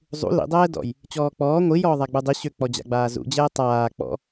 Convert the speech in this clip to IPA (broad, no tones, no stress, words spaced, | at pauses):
zˤṵ lḭdˤɛːdɔ̰j | t͡ɕɔːk͡pɔː ŋʷi jɔːðˤaɡ͡budˤi ɕøk͡pɔ d͡ʑa̰ɡ͡baːzṵd͡ʑɛː tˤaː k͡pɔ̰